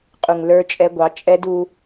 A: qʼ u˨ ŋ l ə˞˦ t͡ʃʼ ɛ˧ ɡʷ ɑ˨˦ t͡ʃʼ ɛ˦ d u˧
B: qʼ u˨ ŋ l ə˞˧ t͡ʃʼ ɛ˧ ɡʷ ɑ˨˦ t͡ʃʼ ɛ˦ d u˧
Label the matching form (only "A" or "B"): B